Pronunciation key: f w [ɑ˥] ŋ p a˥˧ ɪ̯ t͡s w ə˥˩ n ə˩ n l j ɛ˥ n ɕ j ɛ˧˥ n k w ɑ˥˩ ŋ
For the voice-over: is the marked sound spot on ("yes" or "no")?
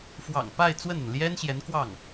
no